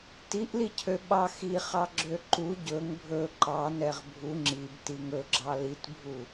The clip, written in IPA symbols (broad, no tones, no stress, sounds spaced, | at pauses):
t i ʔ l i cʰ ø ɓ ɑ x i χ ɑ ɡ͡ǁ ø ǃ u ɟ ɵ ŋ bʱ ɵ ǃ ɑ n ɛ ʁ bʱ u ŋ͡ǁ i b t i ŋ ɵ ɡ͡ǁ ɑ l i t bʱ u